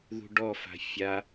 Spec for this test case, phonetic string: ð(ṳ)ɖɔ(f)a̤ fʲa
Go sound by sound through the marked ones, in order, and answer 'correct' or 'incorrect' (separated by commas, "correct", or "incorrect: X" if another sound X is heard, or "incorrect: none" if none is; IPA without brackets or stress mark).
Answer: correct, correct